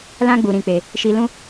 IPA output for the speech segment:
l ã˦ ɡ͡b u˨ ɾ ĩ˨ k͡p e˨ | ʃ i˨ l ũ˧

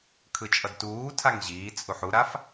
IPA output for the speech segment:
kʰ ɯ t͡ʃʼ ʌ d t uː tʰ a ŋ ʑ iː t͡sʼ u ħ u ɾ a f

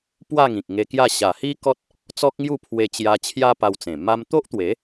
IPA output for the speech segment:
p w a˥˧ ŋ ĩ˨ k̚ ŋ e˧ k j a˥˧ ɕ a˨˩ h i˦ k ɔ˦ t̚ | t͡s ɔ˦ k̚ ŋ j u˥˧ pʰ w e˧ t͡ɕ j a˧ t͡ɕʰ j a˦ p a˧ w t͡s ẽ˨˩ m a˧ m t̪ o˦ ʔ t̪ w e˨˦

